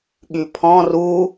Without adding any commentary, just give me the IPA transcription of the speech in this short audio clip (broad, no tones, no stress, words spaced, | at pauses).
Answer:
ɠypʰɔ̃ ru